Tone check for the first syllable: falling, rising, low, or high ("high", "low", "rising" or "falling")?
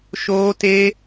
high